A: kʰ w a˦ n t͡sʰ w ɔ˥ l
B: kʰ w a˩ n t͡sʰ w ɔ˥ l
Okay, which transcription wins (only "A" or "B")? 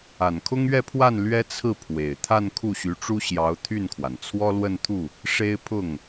B